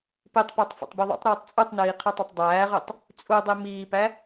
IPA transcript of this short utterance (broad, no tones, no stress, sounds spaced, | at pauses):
p i tˤ p æ tˤ f ḛ tˤ b i ðˤ o̰ tˤ ɾ ɯː tˤ t͡sʼ u tˤ n iː qʰ ɯ tˤ o tˤ dˤ æː ʁ ɯ tˤ | t͡sʼ u dˤ i m iː p æ